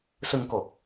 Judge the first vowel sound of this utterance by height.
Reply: high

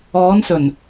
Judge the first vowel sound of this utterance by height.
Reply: mid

